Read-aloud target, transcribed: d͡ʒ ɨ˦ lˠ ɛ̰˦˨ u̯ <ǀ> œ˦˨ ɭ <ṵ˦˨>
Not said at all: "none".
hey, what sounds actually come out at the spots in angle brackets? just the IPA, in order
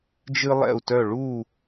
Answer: t, u˦˨

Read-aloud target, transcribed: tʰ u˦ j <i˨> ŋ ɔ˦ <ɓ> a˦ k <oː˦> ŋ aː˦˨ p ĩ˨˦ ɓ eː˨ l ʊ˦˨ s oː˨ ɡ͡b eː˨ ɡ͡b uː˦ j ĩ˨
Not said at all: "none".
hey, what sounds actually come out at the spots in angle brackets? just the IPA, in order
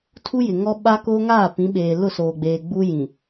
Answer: ɪ˨, ɓ, oː˦

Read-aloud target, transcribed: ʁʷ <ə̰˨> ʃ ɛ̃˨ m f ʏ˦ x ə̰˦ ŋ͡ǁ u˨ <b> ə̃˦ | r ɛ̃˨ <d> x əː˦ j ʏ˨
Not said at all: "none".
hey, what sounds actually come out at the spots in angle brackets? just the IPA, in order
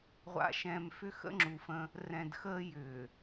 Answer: a̰˨, f, d

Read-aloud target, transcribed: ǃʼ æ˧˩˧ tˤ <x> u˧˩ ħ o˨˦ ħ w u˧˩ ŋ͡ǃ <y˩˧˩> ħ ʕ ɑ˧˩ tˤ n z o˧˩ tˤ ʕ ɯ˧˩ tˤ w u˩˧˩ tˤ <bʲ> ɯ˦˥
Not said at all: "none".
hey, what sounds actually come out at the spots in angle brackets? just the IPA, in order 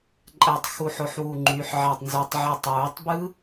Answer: x, y˩˧˩, b

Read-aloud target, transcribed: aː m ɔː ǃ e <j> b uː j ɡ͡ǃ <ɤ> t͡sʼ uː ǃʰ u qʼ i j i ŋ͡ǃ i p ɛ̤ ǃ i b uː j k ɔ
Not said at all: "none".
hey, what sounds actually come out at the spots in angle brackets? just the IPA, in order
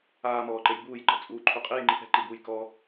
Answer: j, ɤ

